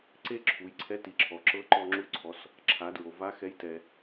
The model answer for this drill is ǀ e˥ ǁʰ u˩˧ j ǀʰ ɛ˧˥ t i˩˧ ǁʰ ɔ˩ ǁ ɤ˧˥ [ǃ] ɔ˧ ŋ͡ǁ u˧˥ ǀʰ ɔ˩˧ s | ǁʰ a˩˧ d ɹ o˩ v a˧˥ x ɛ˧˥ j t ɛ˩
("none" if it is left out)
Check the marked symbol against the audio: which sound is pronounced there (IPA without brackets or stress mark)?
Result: ǃ